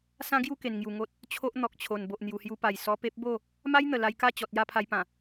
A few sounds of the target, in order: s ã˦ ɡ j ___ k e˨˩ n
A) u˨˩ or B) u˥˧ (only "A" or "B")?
B